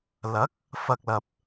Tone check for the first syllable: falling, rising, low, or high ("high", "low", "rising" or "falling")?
rising